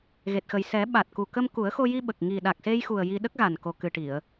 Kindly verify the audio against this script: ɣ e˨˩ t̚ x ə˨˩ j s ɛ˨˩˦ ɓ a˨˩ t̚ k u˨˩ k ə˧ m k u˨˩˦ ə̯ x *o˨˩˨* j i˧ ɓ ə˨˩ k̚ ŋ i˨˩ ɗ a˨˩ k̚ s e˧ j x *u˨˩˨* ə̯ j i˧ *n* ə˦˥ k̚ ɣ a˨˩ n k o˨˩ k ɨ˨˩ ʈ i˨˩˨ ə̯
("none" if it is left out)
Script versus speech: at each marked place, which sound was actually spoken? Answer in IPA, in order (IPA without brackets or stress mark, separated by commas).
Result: o˧, u˨˩, ɗ